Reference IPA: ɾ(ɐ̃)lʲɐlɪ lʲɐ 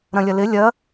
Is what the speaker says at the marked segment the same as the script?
yes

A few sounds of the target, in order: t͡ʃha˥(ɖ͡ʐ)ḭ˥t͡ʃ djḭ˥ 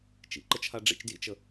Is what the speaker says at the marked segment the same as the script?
yes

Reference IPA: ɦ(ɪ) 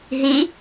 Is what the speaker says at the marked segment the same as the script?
no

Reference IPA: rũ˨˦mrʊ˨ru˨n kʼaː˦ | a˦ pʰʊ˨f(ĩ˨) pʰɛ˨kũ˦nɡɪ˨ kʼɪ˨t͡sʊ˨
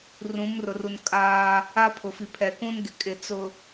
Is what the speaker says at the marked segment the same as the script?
no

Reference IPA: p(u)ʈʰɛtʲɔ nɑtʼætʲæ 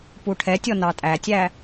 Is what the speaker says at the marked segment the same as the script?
yes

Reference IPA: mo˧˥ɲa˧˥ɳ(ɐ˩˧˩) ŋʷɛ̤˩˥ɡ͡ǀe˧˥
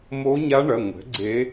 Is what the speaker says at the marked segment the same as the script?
yes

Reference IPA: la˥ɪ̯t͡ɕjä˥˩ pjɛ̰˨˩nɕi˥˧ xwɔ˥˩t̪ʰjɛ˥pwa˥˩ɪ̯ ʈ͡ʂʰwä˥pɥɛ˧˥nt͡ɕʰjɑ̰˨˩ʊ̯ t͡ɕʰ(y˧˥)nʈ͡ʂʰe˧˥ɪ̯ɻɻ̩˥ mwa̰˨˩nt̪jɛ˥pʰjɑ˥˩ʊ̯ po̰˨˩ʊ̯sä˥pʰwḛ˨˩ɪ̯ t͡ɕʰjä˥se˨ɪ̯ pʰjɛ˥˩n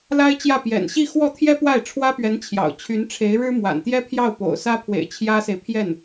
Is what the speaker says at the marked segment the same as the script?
yes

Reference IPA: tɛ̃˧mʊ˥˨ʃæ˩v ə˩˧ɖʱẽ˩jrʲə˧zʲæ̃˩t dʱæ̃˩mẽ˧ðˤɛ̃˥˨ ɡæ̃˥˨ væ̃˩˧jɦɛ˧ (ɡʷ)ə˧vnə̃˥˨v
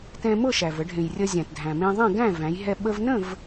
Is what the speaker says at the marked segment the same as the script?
no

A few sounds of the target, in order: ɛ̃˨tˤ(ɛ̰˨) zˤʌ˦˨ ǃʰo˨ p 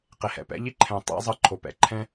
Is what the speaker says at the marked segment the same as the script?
no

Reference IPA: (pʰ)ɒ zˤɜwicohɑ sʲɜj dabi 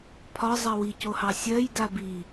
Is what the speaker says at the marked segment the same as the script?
yes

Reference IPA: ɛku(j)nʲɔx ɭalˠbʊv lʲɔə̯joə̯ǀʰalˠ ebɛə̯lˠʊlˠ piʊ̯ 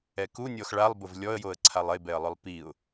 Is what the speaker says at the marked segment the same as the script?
no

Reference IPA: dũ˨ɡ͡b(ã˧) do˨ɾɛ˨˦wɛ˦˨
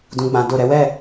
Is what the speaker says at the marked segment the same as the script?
no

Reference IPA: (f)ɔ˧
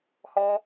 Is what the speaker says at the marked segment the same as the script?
no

